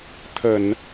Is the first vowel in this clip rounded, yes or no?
no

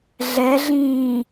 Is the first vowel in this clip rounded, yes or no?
no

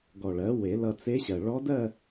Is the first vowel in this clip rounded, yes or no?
yes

